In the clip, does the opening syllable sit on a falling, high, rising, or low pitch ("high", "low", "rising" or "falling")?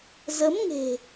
rising